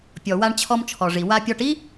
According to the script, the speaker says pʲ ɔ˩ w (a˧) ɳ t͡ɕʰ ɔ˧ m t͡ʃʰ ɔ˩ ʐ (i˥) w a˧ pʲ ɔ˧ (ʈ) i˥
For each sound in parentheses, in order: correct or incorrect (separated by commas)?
correct, incorrect, correct